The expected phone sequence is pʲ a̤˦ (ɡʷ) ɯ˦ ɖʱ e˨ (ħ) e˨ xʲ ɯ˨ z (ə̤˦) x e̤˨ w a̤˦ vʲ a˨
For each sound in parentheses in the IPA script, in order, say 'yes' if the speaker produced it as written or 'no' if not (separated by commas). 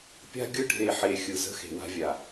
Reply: no, yes, yes